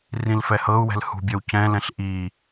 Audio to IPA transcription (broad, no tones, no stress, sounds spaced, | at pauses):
r ĩ l f ɛ h ɤ u̯ w ɛ̤ l h ṳ bʲ ɒ w c ɛ̃ l ɛ̃ ɬ ʔ i